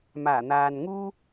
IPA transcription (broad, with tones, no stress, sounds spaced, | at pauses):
m aː˨˩ n̪ aː˨ n ŋ uː˥